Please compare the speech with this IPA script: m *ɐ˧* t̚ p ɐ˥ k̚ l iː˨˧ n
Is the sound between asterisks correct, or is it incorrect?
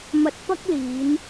correct